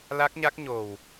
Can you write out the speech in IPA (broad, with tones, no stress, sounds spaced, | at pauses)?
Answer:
l a˦˥ k̚ ɲ a˦˥ k̚ ɲ o˨˩ w